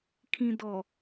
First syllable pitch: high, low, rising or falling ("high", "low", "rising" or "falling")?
low